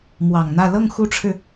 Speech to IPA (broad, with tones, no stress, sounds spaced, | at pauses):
m w ɑ˨˩ ŋ n̪ ä˥˧ l ɤ˥˩ ŋ x u˥ ʈ͡ʂʰ ɻ̩˨